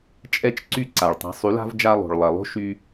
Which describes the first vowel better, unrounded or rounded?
unrounded